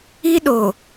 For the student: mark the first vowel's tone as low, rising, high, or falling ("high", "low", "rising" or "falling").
high